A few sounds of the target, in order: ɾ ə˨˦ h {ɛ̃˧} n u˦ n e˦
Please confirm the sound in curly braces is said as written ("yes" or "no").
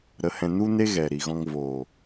yes